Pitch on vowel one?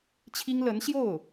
high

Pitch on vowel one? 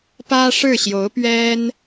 high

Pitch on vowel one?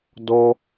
high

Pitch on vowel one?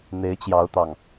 rising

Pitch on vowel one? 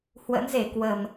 rising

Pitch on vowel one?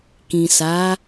low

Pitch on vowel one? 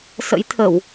rising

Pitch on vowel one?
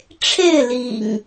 falling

